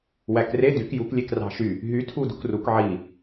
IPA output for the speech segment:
w æ k r e d y k j u k lʲ e k r ɑ̤ ʃ y | ɦ y tʰ u d ṳ k r u k ʕ i

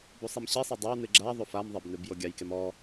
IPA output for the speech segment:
b u sˤ i m ɕ i sˤ e dˤ ɛ w n ɨ ɡ͡ǁ a ðˤ o f a m ðˤ ɛ b n ɨ b j o ɡʲ a j k e m ɔ

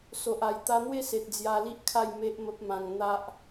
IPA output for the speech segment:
s o˨ ʔ a˨˩ j t̪ a˧ n̪ w e˦ s e˨ t̚ d͡z j a˧ l i˦ ʔ kʰ a˥˧ j m e˦ ʔ m ə˦ p̚ m ã˧ ŋ n̪ a˦ ʔ

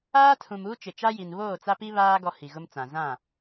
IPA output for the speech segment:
aː˦ tʰ ũ˨ m uː˦ t͡ʃ ɪ˨ t͡ʃ a˦ j i˨ n β oː˦˨ t͡s a˦ p i˦ β aː˦ ɡ ɔ˦ h i˨ ɣ ʊ˦ m t͡s ã˨ z ã˦˨

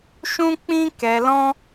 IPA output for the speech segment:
ʃ ũ˦ k͡p ĩ˦ k ɛ˧ l ɔ̃˦

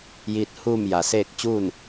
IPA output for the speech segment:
j iː˧ t̚ h uː˥˨ m j a˩ s eː˥˨ k̚ t͡ɕ uː˥˨ n

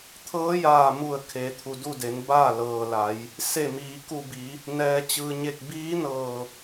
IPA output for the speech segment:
t̪ʰ ɤː˧˥ j aː˧˩ m u˧˩ ə̯ kʰ eː˩˧ t̪ʰ u˩ d u˥˨ d e˩˧ n b aː˥˨ l ɤː˩ l a˩˧ j | s e˧˩ m iː˩˧ k u˧˩ b i˩˧ | n ɛː˩ t͡ɕ ɯː˩ ɲ e˧˩ k̚ b iː˧˥ n ɤː˧˩

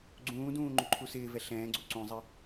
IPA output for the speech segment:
ɡ͡ǀ ũː d ũː ŋ͡ǃ u ǃʰ u s ɪː v ɛ ɬ ɛ̃ː ɡ͡ǀ u ǀ ũ zˤ ɪ

